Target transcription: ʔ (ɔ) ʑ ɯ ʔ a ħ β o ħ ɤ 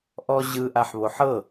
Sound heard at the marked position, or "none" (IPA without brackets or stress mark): ɔ